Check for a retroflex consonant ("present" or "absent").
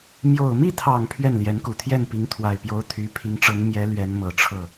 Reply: present